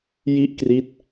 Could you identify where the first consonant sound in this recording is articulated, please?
palatal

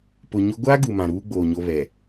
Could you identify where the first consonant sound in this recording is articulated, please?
labial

